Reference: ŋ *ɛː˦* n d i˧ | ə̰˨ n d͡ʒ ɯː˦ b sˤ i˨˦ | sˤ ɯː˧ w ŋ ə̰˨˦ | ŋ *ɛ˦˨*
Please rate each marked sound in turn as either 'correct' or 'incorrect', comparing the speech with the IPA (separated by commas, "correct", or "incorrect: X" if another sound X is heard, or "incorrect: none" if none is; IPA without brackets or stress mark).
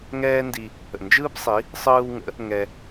correct, incorrect: ɛ˧